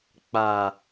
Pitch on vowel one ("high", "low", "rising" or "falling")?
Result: low